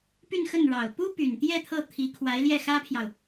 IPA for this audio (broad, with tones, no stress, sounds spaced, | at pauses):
p y˥˧ n x ə˥˩ n ɻ ɑ˨˩ ʊ̯ p u˥ p y˨˩ n t̪ j ɛ˥˧ t̪ʰ ɤ˥˩ t̪ʰ i˧˥ kʰ w a˧˥ ɪ̯ l j ɛ˥˩ x ä˥ pʰ j ɑ˨ ʊ̯